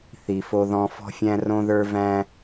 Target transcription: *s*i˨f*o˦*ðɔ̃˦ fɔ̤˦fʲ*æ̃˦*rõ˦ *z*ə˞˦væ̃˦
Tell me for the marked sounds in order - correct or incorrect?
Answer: incorrect: θ, correct, correct, incorrect: ð

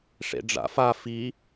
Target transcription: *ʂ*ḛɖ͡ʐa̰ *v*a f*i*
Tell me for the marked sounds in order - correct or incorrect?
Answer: correct, incorrect: f, correct

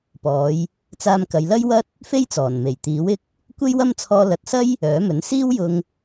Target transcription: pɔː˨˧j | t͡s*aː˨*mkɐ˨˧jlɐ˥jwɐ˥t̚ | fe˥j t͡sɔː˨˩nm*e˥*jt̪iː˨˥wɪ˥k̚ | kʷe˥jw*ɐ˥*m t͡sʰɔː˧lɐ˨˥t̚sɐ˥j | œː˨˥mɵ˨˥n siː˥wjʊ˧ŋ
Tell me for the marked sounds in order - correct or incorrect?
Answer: incorrect: aː˧, incorrect: e˨˩, correct

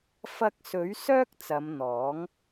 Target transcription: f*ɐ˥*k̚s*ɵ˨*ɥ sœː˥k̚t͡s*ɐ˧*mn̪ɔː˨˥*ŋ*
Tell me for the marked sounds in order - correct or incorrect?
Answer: incorrect: ɐ˧, incorrect: ɵ˨˥, incorrect: ɐ˨˧, correct

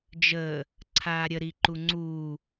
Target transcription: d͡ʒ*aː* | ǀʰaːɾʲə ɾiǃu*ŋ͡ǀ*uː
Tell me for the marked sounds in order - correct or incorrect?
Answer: incorrect: əː, correct

